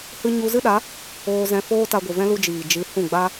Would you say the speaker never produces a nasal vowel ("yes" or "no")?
no